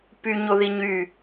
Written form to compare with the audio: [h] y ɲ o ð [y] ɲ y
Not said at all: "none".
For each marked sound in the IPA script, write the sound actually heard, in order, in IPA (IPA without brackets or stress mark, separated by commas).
p, i